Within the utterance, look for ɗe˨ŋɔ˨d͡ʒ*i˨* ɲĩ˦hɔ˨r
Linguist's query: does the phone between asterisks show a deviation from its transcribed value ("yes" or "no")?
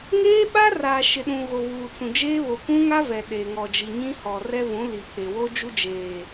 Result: no